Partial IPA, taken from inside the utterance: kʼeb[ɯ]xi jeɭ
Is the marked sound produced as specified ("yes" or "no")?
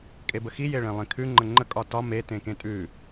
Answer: no